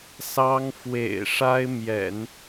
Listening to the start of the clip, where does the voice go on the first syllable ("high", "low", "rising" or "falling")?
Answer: high